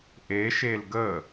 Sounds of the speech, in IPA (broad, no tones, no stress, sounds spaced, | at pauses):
ʔ e ʃ e l ɡ ə